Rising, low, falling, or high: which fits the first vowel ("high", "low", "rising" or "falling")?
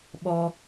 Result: low